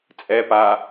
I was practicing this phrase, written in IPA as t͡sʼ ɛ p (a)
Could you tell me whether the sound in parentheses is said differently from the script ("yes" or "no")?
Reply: no